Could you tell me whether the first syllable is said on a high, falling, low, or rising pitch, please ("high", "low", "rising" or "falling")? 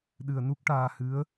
low